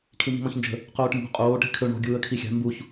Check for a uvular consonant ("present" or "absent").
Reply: present